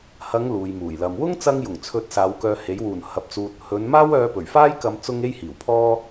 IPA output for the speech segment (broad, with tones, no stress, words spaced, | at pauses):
hɐ˨˧ŋ luː˨jmuː˨˩j lɐ˨m wʊ˥ŋt͡sɐ˧ŋjʊ˨˩ŋt͡sʰɵ˨˥t̚ saː˨˧wkœː˧he˨˥j wuː˨˩n hɐ˨p̚t͡suː˨t̚ hɵ˨˧nmaː˥w œː˧pɵ˨˩ɥfaː˥jkɐ˧m t͡sʊ˥ŋe˥jhiː˨˩wpʰɔː˥